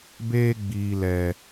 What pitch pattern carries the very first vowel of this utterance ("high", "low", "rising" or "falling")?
high